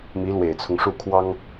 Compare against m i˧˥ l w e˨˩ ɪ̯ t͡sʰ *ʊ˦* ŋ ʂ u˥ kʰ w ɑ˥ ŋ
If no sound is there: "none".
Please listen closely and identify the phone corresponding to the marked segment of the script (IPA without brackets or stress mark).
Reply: ʊ˦